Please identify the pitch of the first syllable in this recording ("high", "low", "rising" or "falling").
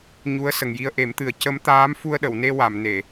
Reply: rising